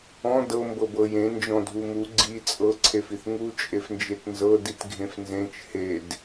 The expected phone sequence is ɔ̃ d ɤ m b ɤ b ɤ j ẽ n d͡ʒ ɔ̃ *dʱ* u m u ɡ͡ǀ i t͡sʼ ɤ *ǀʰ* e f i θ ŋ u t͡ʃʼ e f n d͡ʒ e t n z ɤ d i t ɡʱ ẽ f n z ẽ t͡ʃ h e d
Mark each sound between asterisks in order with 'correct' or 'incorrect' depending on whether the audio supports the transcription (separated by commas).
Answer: correct, correct